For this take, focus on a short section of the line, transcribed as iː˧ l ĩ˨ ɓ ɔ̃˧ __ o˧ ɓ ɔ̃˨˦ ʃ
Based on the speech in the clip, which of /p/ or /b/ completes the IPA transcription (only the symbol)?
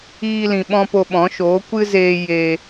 p